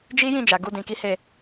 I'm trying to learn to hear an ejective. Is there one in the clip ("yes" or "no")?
no